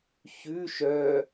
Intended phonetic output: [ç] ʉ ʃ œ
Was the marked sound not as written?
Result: no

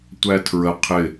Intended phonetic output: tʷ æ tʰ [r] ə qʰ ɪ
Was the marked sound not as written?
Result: yes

